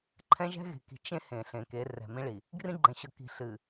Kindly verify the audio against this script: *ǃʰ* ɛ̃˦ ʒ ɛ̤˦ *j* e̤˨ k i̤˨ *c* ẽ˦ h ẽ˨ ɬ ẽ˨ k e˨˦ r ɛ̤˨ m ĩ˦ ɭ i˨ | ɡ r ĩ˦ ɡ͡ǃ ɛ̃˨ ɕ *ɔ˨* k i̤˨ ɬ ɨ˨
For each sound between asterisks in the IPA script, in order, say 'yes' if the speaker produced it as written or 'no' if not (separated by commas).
yes, no, no, no